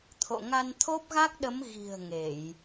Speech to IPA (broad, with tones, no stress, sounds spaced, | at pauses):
t̪ʰ o̰˧˨ ŋ a˧ n t̪ʰ o˦˥ p̚ ɣ a˦˥ k̚ ɗ ə˨˦ m ɣ i̤˨˩ ə̯ ŋ e˧˩˨ j